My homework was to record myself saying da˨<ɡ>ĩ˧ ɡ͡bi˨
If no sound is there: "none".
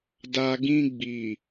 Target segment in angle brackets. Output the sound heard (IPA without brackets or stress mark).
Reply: ɡ